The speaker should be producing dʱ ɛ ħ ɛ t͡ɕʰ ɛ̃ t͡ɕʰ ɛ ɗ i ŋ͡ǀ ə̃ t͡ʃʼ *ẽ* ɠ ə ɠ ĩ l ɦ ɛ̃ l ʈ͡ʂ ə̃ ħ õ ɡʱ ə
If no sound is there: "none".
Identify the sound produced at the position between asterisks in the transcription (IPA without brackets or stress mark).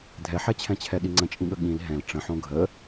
ĩ